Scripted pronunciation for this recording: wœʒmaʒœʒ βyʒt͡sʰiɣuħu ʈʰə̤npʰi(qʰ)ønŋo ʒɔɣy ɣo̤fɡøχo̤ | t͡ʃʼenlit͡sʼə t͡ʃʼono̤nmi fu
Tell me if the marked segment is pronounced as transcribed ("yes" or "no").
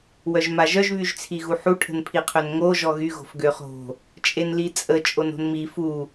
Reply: yes